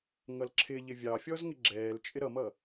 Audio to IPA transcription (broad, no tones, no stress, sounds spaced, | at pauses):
ŋ ʌ l ǁʰ ɪ ʎ ɪ vʲ ɑ fʲ ɔ z ŋ ɪ ɡ͡ǁ ɛː l t͡ʃʼ ɪ ɾ ʌ m ʌ